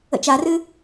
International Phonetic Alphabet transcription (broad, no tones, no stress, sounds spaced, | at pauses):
ə̰ t͡ʃ a r ɨ